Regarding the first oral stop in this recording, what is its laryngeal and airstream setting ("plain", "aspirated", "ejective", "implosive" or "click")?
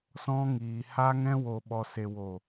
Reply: implosive